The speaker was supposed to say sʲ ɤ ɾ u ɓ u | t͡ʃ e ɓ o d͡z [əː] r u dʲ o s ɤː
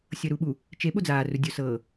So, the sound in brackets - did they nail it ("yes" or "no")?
no